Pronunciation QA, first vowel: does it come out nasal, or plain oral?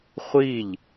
oral